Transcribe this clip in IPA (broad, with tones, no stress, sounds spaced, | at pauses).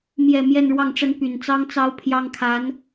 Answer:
m j ɛ˨˩ m j ɛ˥˧ n ɻ w ɑ˥˩ ŋ ʈ͡ʂ ə˥ n p y˨˩ n t͡s ɑ˥ ŋ t͡s ɑ˥ ʊ̯ pʰ j ɑ˥ ŋ kʰ a˧˥ n